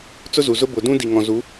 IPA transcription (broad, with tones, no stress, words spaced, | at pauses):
t͡sʊ˦zu˨zʊ˦ bʊ˨dũ˦ di˨ŋɔ̃˨ zu˨˦